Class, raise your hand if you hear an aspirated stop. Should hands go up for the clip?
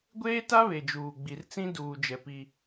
no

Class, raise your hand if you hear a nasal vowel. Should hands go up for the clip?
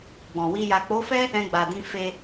yes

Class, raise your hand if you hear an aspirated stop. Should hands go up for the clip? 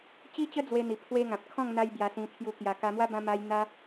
yes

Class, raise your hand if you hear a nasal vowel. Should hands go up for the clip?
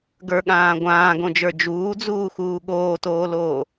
yes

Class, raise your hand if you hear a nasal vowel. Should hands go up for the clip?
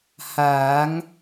no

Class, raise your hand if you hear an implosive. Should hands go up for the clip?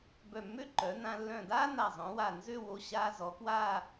no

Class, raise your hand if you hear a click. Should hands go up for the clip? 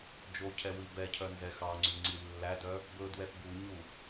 yes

